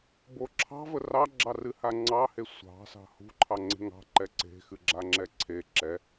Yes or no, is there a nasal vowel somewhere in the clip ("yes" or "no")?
no